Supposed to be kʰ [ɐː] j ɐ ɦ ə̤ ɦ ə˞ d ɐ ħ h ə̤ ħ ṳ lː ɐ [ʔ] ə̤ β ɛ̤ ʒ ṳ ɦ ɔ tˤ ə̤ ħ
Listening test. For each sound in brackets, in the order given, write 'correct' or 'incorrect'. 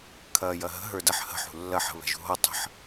correct, incorrect

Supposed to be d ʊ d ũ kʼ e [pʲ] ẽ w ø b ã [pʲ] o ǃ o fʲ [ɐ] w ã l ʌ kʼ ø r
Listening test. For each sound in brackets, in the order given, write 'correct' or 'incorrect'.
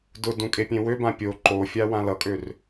correct, correct, incorrect

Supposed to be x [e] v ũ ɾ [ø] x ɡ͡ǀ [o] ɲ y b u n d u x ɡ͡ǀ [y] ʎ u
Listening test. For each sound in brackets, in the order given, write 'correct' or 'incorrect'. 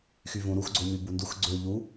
incorrect, incorrect, correct, incorrect

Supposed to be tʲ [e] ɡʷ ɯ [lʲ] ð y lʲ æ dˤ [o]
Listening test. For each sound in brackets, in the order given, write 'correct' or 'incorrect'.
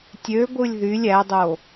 incorrect, correct, correct

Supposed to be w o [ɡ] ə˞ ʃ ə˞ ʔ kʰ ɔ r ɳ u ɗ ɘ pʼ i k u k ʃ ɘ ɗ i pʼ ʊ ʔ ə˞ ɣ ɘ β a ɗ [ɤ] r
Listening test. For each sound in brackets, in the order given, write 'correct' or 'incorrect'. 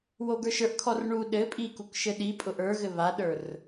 correct, incorrect

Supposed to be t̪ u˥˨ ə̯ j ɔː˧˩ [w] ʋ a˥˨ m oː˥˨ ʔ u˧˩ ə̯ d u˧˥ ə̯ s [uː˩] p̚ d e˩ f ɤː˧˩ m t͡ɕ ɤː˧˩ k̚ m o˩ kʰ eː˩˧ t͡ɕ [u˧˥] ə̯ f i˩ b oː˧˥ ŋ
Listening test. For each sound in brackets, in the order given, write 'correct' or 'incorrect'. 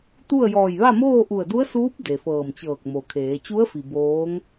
incorrect, incorrect, correct

